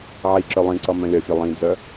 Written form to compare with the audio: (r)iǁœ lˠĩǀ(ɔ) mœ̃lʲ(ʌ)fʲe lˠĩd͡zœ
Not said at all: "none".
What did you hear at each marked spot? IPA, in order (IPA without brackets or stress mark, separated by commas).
ʕ, ʌ, ʌ